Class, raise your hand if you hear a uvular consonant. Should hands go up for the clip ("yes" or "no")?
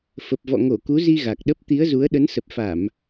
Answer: no